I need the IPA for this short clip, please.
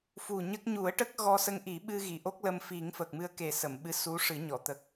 fu˨˩ɲə˦˥k̚ ɲu˨˩˦ə̯ʈə˦˥k̚ ɣɔ˧sə˧ŋʔi˨˩˦ɓɨ˧ ɣi˨˩˨ʔo˦˥k̚lə˧mfi˨˩˦ŋ fə˨˩k̚mɨ˧ə̯ke˨˩ sə˨˩˨mɓɨ˧˥ su˧˥ ʂɨ˨˩˦ɲɔ˨˩˨ t̪ə˨˩k̚

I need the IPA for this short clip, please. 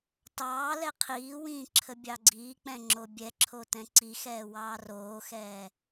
tɑː lɛqʰiːwĩː ǁʰəbʲɑɡ͡ǀiːk͡pɛ̃ ŋ͡ǁobʲɛǁʰo tɛ̃ǀixɛː wɑːroːxɛː

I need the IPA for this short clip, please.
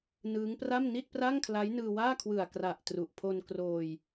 nɯː˦˥ŋpra˥˩m ni˥˩t̚pra˥˩ŋkʰla˦˥j nɯː˧waː˥˩kʰwɯ˨˩a̯kra˨˩ʔ tru˨˩ʔ pʰo˧nkroː˧j

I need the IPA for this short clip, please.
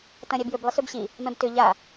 tɐ̃ɾʲabjʏb lˠɪsøbɕi | mɛ̃btʏ ʎa

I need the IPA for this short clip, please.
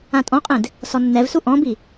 ãtʼɔ̃qʼẽd | sɔnːɛvsu ʔɔ̃bi

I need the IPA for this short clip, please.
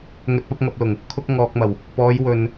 ŋɵ˨t̚pɐ˧p̚ ŋɐ˨p̚lʊ˨˩ŋ | kʰʊ˧k̚ ŋɔː˨k̚mɐ˨˩w | pɔː˨˧jwɵ˨n

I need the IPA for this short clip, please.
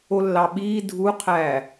olːɑɓiː dʱuqʰæː

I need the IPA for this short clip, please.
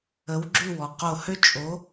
ə˨˥wɡ͡ǁʉ˥˨wɔ˩ qo˧˩hø˥t͡ʃʼo˨˥

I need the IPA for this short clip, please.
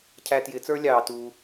cʰæ˧tjɪː˨˦t͡sə˞˦ lʲɑː˨ tuː˧

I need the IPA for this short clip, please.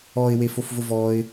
ɔɪ̯wefofvʊ vɔɪ̯

